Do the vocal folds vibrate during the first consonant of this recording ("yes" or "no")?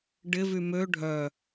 yes